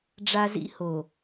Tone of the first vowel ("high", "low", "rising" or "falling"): high